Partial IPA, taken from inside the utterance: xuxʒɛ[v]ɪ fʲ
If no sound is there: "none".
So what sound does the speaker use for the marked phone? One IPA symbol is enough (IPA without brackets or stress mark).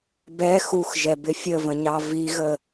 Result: b